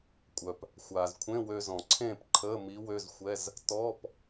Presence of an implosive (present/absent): absent